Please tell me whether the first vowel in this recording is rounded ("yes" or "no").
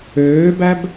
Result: yes